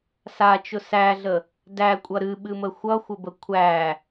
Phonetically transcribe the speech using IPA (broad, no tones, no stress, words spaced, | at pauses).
sat͡ʃʊ sæɮə | dækʷʼʌ ɾɨɓɨmə xʷʌxʷəbə kʷʰæ